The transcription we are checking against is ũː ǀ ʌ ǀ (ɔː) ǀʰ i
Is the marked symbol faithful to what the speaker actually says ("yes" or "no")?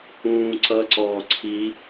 yes